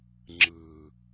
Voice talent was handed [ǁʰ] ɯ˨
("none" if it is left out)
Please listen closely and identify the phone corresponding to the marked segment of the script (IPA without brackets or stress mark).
ŋ͡ǁ